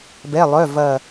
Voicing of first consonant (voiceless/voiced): voiced